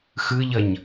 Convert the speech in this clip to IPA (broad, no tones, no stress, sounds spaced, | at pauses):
x ɯ ʎ ʌ ɲ